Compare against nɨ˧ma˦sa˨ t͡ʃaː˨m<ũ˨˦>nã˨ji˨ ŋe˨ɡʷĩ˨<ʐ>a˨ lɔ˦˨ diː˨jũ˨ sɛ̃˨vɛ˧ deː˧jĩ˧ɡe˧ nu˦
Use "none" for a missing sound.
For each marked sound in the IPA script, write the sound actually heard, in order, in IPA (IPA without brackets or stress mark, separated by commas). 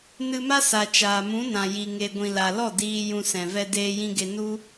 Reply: ũ˨˦, l